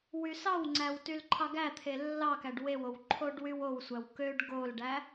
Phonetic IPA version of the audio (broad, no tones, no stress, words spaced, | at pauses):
wysɑwŋ͡ǀæw tylǃʰɑɡæt̪ʰe lːɑkæɖ wewow ǃʰoɖwywowsʷæw køɖ ɡolɖæ